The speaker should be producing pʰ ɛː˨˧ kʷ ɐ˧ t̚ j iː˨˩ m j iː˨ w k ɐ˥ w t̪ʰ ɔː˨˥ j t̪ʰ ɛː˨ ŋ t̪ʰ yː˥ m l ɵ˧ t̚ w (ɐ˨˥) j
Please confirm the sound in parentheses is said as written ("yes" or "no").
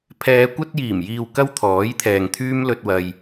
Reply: no